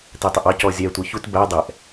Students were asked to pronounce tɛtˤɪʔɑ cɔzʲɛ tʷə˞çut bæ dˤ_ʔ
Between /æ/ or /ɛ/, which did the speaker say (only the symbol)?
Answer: ɛ